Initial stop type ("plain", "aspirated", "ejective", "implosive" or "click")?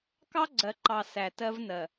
plain